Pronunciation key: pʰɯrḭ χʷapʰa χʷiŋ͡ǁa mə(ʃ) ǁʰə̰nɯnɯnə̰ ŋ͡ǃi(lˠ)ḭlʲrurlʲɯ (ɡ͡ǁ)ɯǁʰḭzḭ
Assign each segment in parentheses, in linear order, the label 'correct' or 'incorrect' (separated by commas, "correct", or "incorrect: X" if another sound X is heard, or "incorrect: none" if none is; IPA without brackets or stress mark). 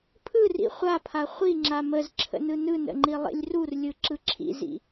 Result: incorrect: z, correct, incorrect: ǁ